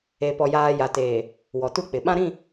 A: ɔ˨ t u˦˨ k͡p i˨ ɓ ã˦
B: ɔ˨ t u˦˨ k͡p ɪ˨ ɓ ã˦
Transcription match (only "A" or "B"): B